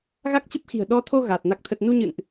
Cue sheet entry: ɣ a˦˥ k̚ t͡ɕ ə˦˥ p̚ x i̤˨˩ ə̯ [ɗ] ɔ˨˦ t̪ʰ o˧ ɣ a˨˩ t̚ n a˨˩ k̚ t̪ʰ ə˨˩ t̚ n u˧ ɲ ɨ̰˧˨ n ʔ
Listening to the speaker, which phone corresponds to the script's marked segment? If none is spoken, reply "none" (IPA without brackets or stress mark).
ɗ